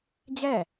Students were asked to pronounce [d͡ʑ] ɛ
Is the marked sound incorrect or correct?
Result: correct